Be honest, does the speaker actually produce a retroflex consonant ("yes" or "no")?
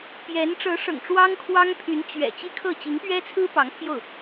yes